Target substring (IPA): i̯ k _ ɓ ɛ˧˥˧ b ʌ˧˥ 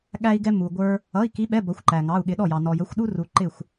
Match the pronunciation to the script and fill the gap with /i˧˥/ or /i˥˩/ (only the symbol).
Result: i˧˥